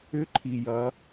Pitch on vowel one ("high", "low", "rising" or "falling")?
rising